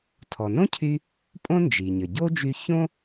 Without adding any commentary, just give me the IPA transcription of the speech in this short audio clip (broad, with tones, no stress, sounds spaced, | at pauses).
tʰ ɔ˩ n õ˥ cʰ y˧ | pʼ õ˥ n d͡ʒ i˩ ɲ ə˩ ɟ o˥ d͡ʒ y˧ ç õ˥